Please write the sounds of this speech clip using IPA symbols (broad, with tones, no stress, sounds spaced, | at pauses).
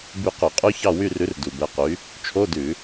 b y˦˨ q ʉ˧˩˧ qʼ ʉ˦˥ ç ɑ˦˨ w y˦˨ r ʉ˨˥ r d u˨˩ b ɛ˨˥ q y˨˥ | t͡ʃʰ o˧˥˧ d ʉ˧˩˧